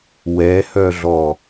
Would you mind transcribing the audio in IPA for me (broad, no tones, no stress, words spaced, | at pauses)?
wɛhœɮɔ